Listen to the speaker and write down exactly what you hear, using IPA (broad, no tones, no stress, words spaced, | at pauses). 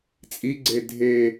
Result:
t͡sʼiɡ͡ǀe dʱe